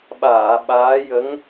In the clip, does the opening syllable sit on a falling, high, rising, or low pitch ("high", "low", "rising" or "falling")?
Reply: low